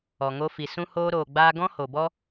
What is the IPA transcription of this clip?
ɔ˨ ŋ o˧ f i˨ s ũ˦ h oː˧ ɾ oː˨ ɡ͡b aː˧ ɡ ɔ̃˦ h o˨ b ɔ˦

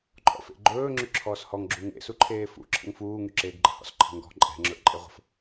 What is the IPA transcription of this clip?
ǃʼ ɔ̰ f ḛ ɡ͡ǃ ɵː ŋ͡ǁ y ǁʰ ɔː s h ɔ ŋ ɡ͡ǁ u ŋ ḛ s u ǃʰ eː f ṵ ǁʰ ə̰ ŋ f uː ŋ y ǁ eː ɡ ɡ͡ǃ ə̤ h ɔ̰ s ǃʰ ə̤ ŋ ɡ ɔ̤ ǃʼ ɛ̤ ŋ͡ǁ ɵ ʔ ǃʼ e ʁʷ ə̤ f

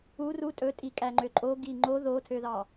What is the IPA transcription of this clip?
u r u tʼ ɵ tʼ i kʼ æ ŋ͡ǃ ø ǃʼ o ɡ i ŋ͡ǃ o ð o tʰ ø ð ɑ

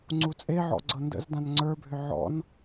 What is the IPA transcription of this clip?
ŋ͡ǀ u t͡sʼ e ʕ ɔ̰ ɡ͡ǀ ɤ n d ə̰ z d ã n ŋ͡ǀ ə˞ bʱ ʏ ʕ ɔ̰ n

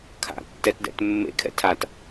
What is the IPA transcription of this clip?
kʰ a̰ tː ɛ t d ɛ̰ t mː ḛ kʰ ɛ̰ tʰ a t

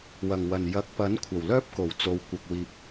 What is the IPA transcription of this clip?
w ɐ˨˩ ŋ w ɐ˨˩ n j ɐ˨˥ k̚ p ɐ˨˥ n kʷʰ ɐ˨˩ w l œː˥ p̚ k o˨˩ w t͡s o˨ w kʷ ɐ˨ k̚ w iː˨ p̚

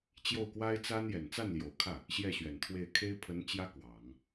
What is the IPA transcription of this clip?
t͡ɕ j o˥˩ ʊ̯ k w a˥ ɪ̯ t͡s a˥ n j ɛ˨˩ n t͡s a˥˩ n l j o˨˩ ʊ̯ kʰ ä˥˩ | ɕ j ɛ˥˩ ɕ ɥ ɛ˨˩ n t̪ʰ w e˥˩ ɪ̯ kʰ e˥ ɪ̯ pʰ ə˧˥ n t͡ɕ j ä˥ k w ɑ˨˩˦ ŋ

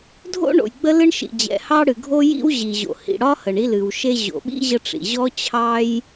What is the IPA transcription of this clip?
dʱ o̰˥ ɳ o̰˩ j ɡ͡b ə˥ l ɨ˥ ɳ ʃ ḭ˩ d͡ʑ ɛ̰˩ h ɑ˥ ɽ ɨ˩ ɡʱ o˥ j ḭ˥ w ʑ i˩ ʑ o̰˩ h ḭ˩ ɽ ɒ˥ h ə˩ ɳ i˥ l ɨ˩ w ʃ e˥ ʑ o̰˩ ɓ ḭ˥ ʑ ə˥ ʈ͡ʂ ḭ˩ ʑ ɔ˥ t͡ɕʰ ɑ˥ j

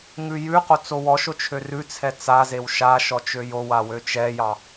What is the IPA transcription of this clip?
ŋ ʉ j ʉ q o t͡s o w ɔ ʃ o t͡ʃʰ ø r ʉ t͡sʰ ɛ t͡s a z e w ʃ a ʃ ɔ t͡ʃ ø j o w a w ø t͡ʃ ɛ j ɑ

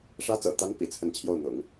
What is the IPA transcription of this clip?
ʂ ä˥ t͡s ɤ̰˨˩ t̪ a˧˥ n p ḭ˨˩ t͡sʰ ə˥˧ n t͡ɕʰ j o˥˩ ʊ̯ n̪ ʊ̰˨˩˦ ŋ

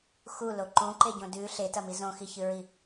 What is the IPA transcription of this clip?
x u l o ǃ ũ ǃ e ɟ õ d ʉ ɬ e t ɐ m i z õ x i ç ɨ ɹ i

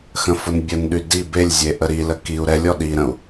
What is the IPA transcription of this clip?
x ə̃ f ʊ n bʲ ə n ɗ y d i b e lʲ zʲ e ʔ ə ɾ i l ə k i u̯ ɾ ɛ lʲ ɔ ɗ i ɾ ə̃ u̯

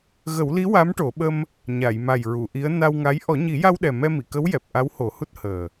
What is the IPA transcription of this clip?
ɣ ə˨˩˦ w l i˧˥ w a˧˥ m ʈ o˨˩˦ ɓ ə˧ m | ɲ a˨˩˨ j m a˨˩ j ɹ u˨˩˨ ʔ i˧˥ ə̯ n a˧ w ŋ a˧˥ j ʔ ɔ˨˩˦ ɲ i˨˩˦ j a˧ w ɗ ɛ˨˩ m ɛ˧ m i˨˩˨ k ə˧˥ w j ɛ˨˩ p̚ ʔ a˧˥ w h o˨˩˦ h u˦˥ t̚ h əː˨˩

